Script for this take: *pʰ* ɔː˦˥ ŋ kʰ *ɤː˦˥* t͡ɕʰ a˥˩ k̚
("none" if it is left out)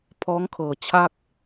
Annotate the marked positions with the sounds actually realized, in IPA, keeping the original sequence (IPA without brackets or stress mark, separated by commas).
pʰ, ɤː˨˩